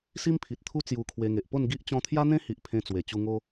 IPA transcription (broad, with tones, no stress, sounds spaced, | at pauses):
s i˦ m pʰ i˨ t̚ t̪ʰ u˦ t͡s j u˧ kʰ w e˧ ŋ e˨ ʔ p o˥˧ n ɡ i˦ ʔ t͡ɕ ɔ̃˧ t̪ʰ j a˦ n̪ ẽ˦ h i˨ ʔ pʰ ẽ˧ t͡s w e˨˩ t͡ɕ u˧ ŋ o˦